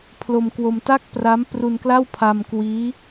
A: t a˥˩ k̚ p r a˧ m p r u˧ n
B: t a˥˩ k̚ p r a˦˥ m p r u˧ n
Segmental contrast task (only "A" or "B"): B